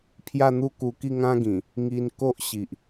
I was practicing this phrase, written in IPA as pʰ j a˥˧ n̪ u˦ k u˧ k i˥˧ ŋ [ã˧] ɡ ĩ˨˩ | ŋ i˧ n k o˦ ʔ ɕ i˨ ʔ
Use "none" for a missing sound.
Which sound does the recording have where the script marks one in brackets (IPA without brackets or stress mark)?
ã˦